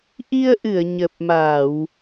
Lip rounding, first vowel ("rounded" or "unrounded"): unrounded